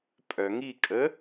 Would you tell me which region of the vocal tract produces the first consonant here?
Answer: lips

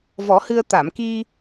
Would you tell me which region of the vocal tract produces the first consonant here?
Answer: lips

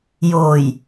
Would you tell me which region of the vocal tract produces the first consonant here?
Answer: palate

